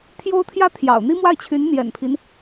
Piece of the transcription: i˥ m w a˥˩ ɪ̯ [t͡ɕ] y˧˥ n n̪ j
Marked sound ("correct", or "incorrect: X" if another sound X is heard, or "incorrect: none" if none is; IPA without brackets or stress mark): incorrect: t͡ɕʰ